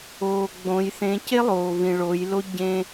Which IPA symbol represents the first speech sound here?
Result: oː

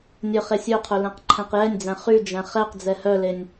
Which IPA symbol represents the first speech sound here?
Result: nʲ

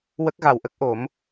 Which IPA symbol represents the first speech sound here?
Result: w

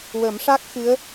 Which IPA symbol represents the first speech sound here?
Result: w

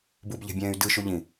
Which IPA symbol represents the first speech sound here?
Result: b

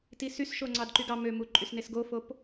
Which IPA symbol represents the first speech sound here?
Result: t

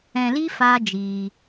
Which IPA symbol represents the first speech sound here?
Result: ɛ̃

